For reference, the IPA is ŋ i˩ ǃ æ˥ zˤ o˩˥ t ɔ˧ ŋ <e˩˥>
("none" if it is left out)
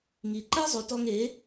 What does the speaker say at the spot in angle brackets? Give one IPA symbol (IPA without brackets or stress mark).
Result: e˩˥